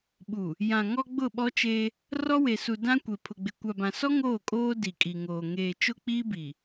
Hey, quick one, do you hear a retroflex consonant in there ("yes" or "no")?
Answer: no